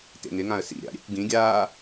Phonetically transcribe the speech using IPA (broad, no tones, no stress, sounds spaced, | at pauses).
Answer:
t ḛ ŋ ɪ ŋ ã ə̯ s ḭ ɾʲ a̰ ɾʲ ḛ kʷ ɡ ĩ ɡʲ aː